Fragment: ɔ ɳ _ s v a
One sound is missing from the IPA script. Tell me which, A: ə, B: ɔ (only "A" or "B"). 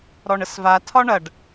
A